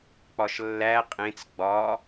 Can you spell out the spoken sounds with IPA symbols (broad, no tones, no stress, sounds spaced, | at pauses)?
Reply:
k͡p ɒ ʃ lː æ qʼ ẽ t͡s ɡ͡b ɒ